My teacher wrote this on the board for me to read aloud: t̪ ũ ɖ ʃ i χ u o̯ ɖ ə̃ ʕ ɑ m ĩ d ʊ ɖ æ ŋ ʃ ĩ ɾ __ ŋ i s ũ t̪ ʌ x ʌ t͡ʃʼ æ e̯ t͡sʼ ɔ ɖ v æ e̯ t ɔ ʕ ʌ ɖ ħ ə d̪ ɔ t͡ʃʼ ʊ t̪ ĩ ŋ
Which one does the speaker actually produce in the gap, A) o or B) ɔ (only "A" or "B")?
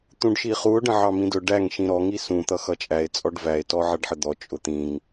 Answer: B